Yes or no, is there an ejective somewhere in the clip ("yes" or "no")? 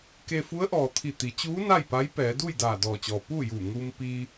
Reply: no